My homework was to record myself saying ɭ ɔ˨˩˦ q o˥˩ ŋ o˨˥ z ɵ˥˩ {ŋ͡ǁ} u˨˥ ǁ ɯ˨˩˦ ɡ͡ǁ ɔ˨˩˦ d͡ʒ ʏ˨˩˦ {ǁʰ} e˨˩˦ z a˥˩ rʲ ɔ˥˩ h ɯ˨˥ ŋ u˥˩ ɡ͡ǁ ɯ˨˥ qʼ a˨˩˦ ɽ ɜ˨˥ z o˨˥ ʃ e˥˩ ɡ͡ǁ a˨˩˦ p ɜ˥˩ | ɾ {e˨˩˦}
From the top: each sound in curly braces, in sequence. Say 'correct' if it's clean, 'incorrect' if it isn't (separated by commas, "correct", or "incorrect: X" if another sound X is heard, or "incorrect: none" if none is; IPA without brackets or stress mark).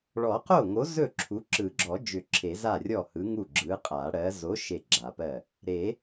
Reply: incorrect: ǁʰ, correct, correct